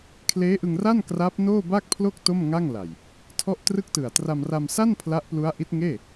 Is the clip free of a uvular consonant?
yes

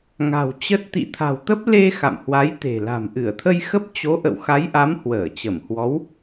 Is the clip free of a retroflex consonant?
yes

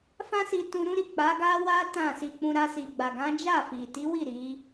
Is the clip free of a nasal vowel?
no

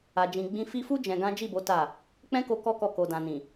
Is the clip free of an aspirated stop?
yes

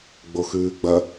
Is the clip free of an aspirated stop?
yes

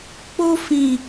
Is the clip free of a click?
yes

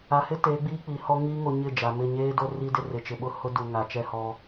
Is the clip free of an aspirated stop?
yes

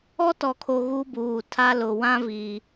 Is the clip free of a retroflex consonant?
yes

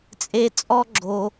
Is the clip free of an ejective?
no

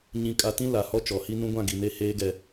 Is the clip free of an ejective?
no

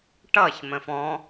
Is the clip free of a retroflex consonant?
no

